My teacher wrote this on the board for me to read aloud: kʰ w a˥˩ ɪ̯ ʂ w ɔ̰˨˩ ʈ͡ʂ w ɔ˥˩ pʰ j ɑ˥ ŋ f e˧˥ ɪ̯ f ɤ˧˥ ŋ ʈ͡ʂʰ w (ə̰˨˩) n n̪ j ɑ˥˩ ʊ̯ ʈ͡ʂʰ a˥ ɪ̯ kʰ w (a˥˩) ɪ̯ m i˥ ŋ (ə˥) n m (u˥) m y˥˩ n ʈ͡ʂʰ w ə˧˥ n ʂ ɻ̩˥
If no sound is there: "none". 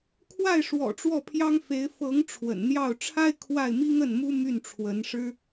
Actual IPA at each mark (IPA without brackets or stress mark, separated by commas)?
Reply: ə̰˨˩, a˥˩, ə˥˩, u˥